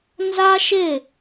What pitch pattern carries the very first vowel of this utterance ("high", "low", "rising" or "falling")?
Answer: high